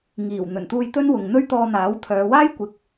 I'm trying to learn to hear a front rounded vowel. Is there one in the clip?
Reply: yes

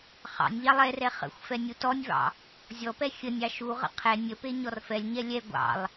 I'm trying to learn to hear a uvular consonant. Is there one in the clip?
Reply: yes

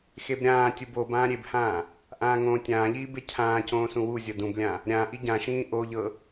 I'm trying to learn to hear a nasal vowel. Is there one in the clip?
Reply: yes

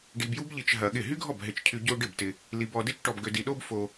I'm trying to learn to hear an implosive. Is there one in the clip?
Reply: yes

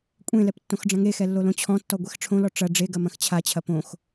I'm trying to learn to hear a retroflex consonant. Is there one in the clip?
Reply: yes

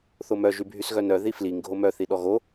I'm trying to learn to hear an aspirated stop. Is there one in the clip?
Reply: no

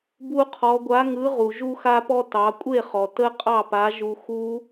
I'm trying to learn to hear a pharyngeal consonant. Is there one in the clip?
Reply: no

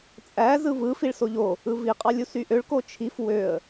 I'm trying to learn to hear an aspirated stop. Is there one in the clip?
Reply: yes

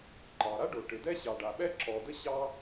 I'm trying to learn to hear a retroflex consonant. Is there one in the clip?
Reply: yes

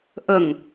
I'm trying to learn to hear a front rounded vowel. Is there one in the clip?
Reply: no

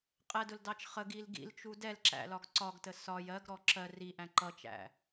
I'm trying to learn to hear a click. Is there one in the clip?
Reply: yes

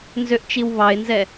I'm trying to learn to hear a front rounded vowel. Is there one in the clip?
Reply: yes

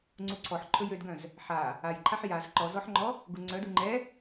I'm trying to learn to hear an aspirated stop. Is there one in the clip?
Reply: yes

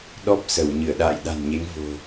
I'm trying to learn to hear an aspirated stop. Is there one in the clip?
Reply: no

